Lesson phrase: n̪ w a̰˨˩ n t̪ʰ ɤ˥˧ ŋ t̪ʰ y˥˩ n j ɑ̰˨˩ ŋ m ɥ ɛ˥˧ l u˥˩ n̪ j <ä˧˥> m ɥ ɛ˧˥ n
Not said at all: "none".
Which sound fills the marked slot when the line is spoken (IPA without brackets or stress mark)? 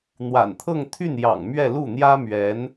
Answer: ä˥